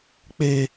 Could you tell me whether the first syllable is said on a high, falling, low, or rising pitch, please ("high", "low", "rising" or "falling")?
high